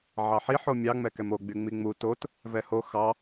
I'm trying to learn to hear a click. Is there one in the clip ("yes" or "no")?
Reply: no